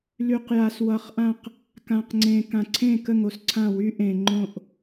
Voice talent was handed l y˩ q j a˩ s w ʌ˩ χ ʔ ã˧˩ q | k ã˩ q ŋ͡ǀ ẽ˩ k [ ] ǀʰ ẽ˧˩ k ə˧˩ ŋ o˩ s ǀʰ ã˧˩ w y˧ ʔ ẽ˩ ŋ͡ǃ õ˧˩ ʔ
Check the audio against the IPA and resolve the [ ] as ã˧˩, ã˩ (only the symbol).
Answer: ã˩